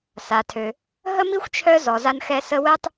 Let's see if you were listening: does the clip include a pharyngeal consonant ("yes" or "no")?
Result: no